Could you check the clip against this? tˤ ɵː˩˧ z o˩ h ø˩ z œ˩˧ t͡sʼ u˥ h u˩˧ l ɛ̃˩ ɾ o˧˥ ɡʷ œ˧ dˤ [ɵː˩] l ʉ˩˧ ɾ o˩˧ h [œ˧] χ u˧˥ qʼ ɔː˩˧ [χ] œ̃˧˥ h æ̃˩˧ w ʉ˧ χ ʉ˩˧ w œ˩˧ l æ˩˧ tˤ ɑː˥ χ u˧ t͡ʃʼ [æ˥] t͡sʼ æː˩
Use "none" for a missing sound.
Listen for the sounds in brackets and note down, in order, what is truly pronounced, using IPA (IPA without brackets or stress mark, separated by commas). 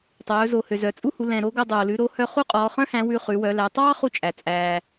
oː˩, œ˧, χ, æ˩